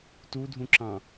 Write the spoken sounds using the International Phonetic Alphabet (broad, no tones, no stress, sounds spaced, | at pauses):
t u dʱ ũ ǁ ɑ̃